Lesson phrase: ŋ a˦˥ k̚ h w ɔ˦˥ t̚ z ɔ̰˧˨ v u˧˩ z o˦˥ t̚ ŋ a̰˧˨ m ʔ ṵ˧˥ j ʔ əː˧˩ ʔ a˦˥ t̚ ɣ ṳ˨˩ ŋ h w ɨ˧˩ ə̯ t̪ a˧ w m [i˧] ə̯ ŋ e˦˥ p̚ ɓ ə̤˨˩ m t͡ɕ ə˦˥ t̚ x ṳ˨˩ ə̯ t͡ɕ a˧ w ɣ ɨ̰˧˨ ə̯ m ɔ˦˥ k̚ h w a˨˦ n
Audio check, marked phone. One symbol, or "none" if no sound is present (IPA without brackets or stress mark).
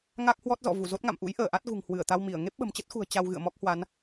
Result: i˧˩